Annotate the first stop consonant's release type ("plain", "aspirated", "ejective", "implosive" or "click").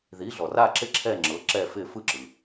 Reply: click